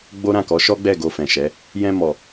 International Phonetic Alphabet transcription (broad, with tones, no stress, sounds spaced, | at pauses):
ɡ͡b o˦ ɾ ã˦˨ k ɔ˨˦ ʃ ɔ˦ ɡ͡b ɛ˦˨ ɡ o˧ f ɛ̃˨ ʃ ɛ˨˦ | j ɛ̃˧ m ɔ˨